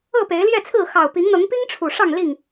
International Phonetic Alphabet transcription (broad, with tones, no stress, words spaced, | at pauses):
ɤ˥˨pe˨˦ɪ̯ljɛ˥˨t͡sʰɹ̩˥˨ xɑ˨˩ʊ̯pi˨˦ŋn̪ɤ˨˦ŋpi˦ŋ ʈ͡ʂʰu˨˩ʂɑ˥˨ŋ li˥˨ŋ